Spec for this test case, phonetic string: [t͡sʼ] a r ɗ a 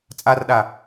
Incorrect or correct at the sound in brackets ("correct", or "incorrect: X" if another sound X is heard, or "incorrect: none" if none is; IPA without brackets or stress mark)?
correct